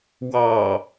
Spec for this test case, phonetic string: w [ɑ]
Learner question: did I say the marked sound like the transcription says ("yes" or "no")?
yes